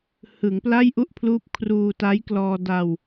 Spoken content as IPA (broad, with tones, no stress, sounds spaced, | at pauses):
h ɯ˩˦ ŋ p l a˥˩ j ʔ u˥˩ ʔ pʰ l uː˦˥ p̚ kʰ r uː˧ t a˦˥ j k l ɔː˧ d a˧ w